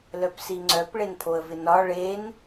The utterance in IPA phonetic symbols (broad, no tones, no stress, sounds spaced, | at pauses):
l œ p s i ŋ͡ǀ œ p ɭ e n pʰ o ə̯ v ɪ n ɒ ɭ e n